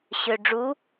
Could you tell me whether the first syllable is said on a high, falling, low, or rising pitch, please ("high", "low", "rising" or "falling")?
low